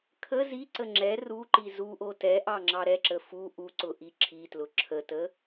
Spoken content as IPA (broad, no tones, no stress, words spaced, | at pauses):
kʰə ziǀə ŋ͡ǁɛ ruǃi zuʔo tɛ ʔɑŋ͡ǁɑɾɛǁə fu ʔuǀʊ ʔiǁʰitlʊ ǁʰətə